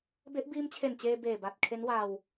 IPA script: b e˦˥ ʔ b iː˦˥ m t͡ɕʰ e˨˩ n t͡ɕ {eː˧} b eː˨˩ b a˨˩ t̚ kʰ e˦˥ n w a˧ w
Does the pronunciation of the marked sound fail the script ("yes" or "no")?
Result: no